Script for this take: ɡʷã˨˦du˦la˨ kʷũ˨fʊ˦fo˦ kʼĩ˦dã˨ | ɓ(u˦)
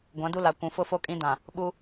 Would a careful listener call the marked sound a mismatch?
no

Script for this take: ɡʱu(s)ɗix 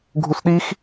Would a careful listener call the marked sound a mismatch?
no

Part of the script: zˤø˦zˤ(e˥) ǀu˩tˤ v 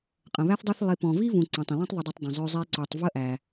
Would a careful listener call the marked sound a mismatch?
no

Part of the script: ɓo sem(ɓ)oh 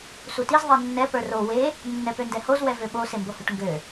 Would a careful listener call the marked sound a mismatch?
yes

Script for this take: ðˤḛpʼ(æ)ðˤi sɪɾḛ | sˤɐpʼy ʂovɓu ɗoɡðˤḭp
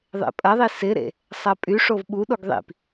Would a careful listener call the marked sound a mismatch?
yes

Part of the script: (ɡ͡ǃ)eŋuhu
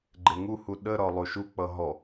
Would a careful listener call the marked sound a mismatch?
no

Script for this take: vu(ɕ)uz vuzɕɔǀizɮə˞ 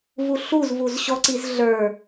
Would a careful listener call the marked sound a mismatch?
yes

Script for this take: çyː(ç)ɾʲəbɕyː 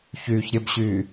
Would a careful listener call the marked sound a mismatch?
no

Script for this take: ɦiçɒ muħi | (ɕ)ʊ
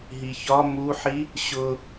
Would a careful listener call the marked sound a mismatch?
no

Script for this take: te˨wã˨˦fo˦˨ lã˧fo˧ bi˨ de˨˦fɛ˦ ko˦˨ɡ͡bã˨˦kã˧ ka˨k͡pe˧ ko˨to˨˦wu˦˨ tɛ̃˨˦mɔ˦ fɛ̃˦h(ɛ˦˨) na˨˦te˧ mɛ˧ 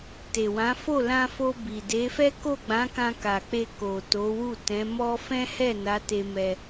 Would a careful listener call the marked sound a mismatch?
no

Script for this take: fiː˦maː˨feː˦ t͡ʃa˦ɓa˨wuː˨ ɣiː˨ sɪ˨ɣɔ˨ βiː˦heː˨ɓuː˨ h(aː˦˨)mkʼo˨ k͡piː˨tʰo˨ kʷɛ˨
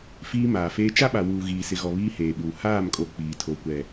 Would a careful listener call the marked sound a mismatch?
no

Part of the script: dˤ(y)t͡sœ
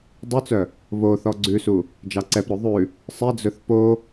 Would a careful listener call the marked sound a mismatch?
no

